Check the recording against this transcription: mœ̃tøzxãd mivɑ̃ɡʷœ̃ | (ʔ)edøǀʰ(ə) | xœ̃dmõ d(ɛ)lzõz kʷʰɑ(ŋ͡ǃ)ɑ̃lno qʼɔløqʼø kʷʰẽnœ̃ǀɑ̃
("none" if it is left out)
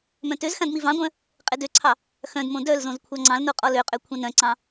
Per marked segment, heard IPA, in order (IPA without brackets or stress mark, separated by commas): qʼ, ɑ, œ, ŋ͡ǀ